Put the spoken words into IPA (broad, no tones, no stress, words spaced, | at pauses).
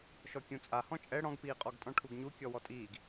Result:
ʃɔkʲũt͡sʼa hɔ̃t͡ʃʼɛ ɽɔ̃ɡpiːqʼɔɡtʼɔ̃ ʈʰuɡɲu kʲɔwɔtʼiːɡ